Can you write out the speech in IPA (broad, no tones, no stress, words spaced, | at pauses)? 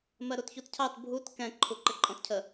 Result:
mɜɾutçutcʰɑt bʱut kɛ̃ ǃʰuǃɪǃʼɔ̃tcʰə